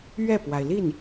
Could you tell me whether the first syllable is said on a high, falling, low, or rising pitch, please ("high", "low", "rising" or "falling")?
falling